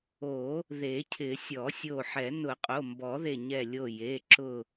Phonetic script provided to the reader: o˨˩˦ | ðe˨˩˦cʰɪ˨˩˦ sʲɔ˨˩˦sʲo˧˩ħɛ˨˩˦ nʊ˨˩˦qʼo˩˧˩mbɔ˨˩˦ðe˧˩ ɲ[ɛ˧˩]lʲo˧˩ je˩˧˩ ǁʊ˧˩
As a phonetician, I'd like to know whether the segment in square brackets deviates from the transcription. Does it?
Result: no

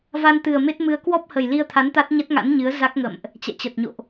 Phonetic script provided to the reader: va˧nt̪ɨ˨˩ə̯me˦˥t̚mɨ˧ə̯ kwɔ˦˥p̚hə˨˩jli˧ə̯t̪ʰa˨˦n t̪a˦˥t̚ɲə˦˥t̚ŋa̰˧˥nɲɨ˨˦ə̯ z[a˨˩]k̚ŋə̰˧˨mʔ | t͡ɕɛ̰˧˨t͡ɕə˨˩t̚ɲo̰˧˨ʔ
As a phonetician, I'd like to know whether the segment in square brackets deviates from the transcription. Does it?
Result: yes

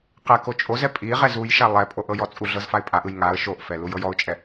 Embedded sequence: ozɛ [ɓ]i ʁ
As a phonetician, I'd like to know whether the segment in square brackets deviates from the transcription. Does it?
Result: yes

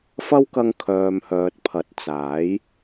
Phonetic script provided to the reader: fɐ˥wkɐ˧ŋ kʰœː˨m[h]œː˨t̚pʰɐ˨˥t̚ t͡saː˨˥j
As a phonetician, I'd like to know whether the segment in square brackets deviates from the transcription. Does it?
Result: no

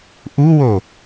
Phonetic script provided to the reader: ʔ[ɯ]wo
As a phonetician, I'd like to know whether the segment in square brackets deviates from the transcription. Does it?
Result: yes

